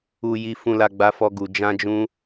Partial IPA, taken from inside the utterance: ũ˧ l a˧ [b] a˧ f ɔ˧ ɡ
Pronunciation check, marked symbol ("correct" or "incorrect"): incorrect